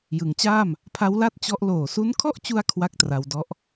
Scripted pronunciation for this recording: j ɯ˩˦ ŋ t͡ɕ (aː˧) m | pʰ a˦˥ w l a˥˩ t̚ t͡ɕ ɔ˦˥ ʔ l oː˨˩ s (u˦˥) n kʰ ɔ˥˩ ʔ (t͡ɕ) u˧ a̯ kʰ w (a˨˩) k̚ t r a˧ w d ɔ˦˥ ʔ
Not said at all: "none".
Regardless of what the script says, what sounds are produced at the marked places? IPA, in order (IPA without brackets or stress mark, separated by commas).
aː˥˩, u˦˥, t͡ɕ, a˥˩